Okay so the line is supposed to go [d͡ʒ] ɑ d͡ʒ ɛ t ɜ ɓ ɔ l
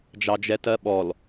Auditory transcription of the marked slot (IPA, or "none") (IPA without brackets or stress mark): d͡ʒ